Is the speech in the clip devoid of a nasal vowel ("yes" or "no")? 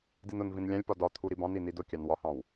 no